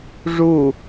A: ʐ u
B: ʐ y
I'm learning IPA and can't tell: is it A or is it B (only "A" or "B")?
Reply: A